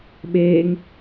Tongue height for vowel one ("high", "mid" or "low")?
mid